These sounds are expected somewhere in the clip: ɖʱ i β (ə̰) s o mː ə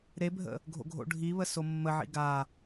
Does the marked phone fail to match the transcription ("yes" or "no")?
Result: yes